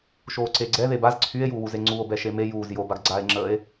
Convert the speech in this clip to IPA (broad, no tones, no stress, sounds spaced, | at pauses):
ʃ oː ǀ e ɡ͡ǀ ɛ ð e b a z ǀʰ y e̯ j uː w u z e ŋ͡ǀ u o̯ b ɛ ʃ e m e j uː z j o b a ɡ ɡ͡ǀ aː e̯ ŋ͡ǁ əː e̯